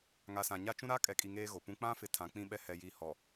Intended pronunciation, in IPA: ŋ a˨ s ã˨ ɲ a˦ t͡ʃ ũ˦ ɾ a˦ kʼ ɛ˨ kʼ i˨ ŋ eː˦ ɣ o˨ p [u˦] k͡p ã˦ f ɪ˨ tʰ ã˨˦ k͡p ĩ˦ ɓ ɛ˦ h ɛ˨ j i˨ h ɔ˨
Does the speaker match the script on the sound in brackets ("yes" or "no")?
no